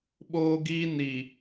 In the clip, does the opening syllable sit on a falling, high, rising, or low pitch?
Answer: high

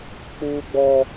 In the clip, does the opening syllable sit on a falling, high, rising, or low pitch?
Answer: high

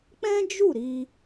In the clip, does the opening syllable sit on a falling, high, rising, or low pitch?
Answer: high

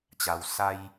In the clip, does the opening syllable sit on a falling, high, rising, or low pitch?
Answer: low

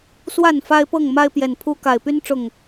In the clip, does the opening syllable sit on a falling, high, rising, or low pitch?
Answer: falling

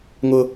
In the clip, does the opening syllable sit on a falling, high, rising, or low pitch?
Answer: high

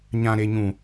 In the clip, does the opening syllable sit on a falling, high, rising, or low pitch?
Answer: high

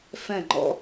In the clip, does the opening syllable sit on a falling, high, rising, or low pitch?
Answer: falling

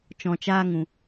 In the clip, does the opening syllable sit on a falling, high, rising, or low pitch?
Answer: low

